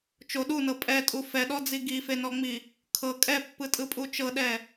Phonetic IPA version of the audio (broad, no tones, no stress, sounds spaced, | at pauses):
t͡ʃ o ɗ u n ɤ pʼ ɛ tʼ u f ɛ ɗ ɔ d͡z i ɡ i f e n ɔ ŋ͡m i | kʰ ɤ kʼ ɛ pː ɯ tʼ ɯ pʼ u t͡ʃ ɤ ɗ ɛ